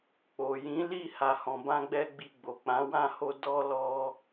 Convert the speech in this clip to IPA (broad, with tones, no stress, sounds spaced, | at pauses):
k͡p o˨ j ĩ˨˦ l i˦˨ h a˧ h ɔ̃˧ b ã˦ ɡ͡b ɛ˦ ɡ͡b i˧ ɡ͡b o˨ k͡p ã˨˦ w ã˦˨ h o˧ d ɔ˦ l ɔ˦